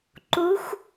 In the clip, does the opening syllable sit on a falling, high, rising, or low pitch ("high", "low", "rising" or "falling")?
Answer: rising